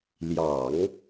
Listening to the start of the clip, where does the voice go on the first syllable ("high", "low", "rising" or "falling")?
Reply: low